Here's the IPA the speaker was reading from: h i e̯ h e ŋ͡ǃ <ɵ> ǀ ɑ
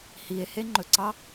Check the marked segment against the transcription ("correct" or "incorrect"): correct